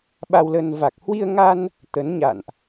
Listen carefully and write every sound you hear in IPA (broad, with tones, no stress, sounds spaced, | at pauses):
ɓ a˧ w l ə˧ n v a˨˩ k̚ h w i˧ ə̯ ŋ a˧ n | t̪ ə˨˦ n ɲ a̰˧˨ n ʔ